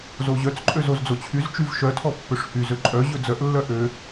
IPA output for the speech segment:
z o ʑ œ t͡s ǃʼ ø z o z d͡z o t͡ɕʰ y z t͡ʃ y v ʃ œ tʰ ɔ pː ø ʂ h y z ø ǃʼ œ ʑ ɵ d͡z œ ʔ lː œ ʔ ø

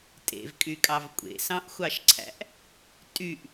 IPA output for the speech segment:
tʼ ḛ v kʼ y kʼ ɑ v kʷʼ ḛ s ɑ̃ ʔ xʷ ɑ ʃ ǀʰ æ̰ ʔ | tʼ y ʔ

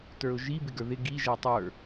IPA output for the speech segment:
t ə˞ ʊ̯ ʒ i b ɪ ɡ ə˞ ð ɪ ɡ i ʒ ɛ tˤ ə˞

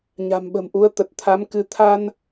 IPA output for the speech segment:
ɲ a̤˨˩ m ɓ ə̤˨˩ m ʔ u˨˦ ə̯ t̪ ə˨˩ t̚ t̪ʰ a˨˦ m k ɨ˨˦ t̪ʰ a˧ n

